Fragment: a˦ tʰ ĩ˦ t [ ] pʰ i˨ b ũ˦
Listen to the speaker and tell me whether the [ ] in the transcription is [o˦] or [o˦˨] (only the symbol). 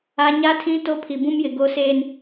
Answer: o˦